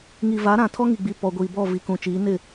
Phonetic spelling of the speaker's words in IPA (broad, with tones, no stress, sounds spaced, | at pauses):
ŋ i˨ v a˨˦ ɾ ã˨ tʰ ɔ˦ ŋ i˨ ɡ͡b i˨ p ɔ˨ ɡʷ iː˨ b ɔ˦˨ v i˨ k ũ˨ t͡ʃ iː˨˦ n ɪ˦˨